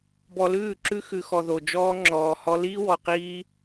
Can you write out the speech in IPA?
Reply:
bɔ˧lʉː˦˨ǁʉ˦ xʉ˧xɔ˧ðo˧ d͡ʒɔː˦ŋ͡ǁɔː˧hɔ˦ liː˦wɔ˧qiː˦

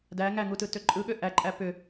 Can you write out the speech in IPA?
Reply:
dæ ŋæŋutɯtø ǃʼɯɠø ʔæǃʼæ pʏ

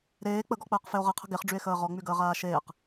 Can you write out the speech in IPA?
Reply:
ɾeː k͡pəɡɔk͡pəːqfeo̯ ʁəqʰə̤ ɡeχɖ͡ʐye̯xəː ʁɔŋ͡myɡəːʁaː ʃeːq

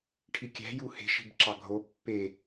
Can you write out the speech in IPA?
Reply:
ʈʰikʲæ̤ juhe̤ ʃi̤bǁɑɡʱo pːe

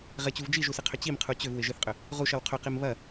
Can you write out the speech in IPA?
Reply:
ʁɪt͡ɕuv d͡ʒiʒusɪqʰʏ t͡ɕimqʰu t͡ɕʏvwɪ ʒɪθqʼʏ | ʁuʃɐw qʰʏqim βɐ

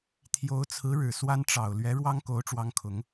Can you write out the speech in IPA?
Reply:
t̪ʰjo˧˥ʊ̯t͡sʰɹ̩˧˥ɻɻ̩˨˩ swa˥n ʈ͡ʂɑ˨˩ʊ̯ lɥɛ˧˥ɻwɑ˥ŋko˧˥ʊ̯ ʈ͡ʂwɑ˥ŋkʰʊ˧˥ŋ

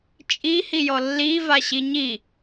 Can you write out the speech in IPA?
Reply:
t͡ʃʼihijɔ lːiva ɕiɲi

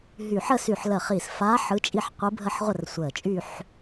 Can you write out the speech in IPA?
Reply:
ɦyː˧˩ħə˥˧ sy˧˩ħlə˧˩χi˧˩sfaː˧˥ ħɯ˧˥t͡ʃʼi˥˧ħ qʷɯ˧˥bʱə˥˧ħʁʷə˥˧r sʷəː˧˩t͡ʃʼy˥˧ħ

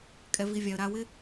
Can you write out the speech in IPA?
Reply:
kʼɛ˨vi˨vʲa˨ə̯ ɾa˨wɪ˧

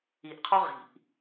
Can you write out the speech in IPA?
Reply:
iʔqʰɔ ʁi̤ʔ

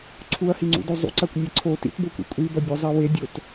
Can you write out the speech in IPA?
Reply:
ǀʰuɐ̯hiŋ͡ǀṵdo zˤṵǀakʷnʲe ǀʰo tḭtbokʷḭ kʷʼibɐbʲuzˤe wedʲot

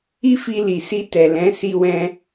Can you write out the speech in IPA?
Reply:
i˦fi˧li˨ si˧ tɛ˨lɛ̃˨˦ si˧ wɛ̃˧

